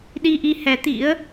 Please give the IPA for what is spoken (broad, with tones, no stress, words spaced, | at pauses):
ɗi˧ʔi˧hɛ˨˦t̪ḭ˧˥ə̯